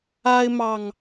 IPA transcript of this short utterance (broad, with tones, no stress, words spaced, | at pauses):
a˦ɪ̯mɑ˨ŋ